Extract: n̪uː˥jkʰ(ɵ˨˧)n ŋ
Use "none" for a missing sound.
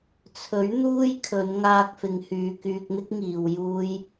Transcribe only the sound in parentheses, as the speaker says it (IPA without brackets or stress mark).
ɵ˨˧